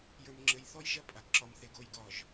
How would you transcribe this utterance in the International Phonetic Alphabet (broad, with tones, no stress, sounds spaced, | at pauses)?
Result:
j ə˞˨ m ŋ͡ǁ ɘ˨ j θ ɔ˦ j ʒ ɐ˦ pʼ a˨ ɡ ǁ ɒ˨ m θ e˨ ɡ o˦˨ j ɡ ɒ˦˨ ʒ